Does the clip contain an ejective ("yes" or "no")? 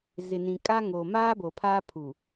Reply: yes